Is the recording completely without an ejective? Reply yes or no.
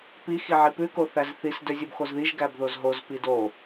yes